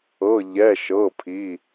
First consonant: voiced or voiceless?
voiced